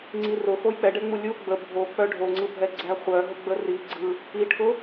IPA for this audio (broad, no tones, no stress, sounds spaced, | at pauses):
ŋ͡ǀ i r ʊ x o j k͡p ɛ ɖ ɛ ŋ͡m u lʲ u ɡ͡b ə bʱ o k͡p œ ɖʱ o ŋ͡ǀ ɯ bʱ ɛ ɡ͡ǀ æ χʷ œ ɦ ʊ ɡ͡b ə r i ɡ͡ǀ ɯ | i ʈʰ ʊ